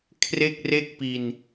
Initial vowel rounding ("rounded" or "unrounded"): unrounded